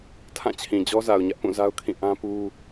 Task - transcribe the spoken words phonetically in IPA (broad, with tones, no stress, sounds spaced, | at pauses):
tʰ ã˦˨ t͡ɕʰ ĩ˨ d͡ʑ ɔ˦ z a˨ ʊ̯ ɲ ä˦ ʔ p ũ˦˨ z a˦ ʊ̯ kʰ ĩ˦˨ ʔ ã˦ p u˦